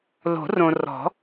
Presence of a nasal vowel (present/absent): present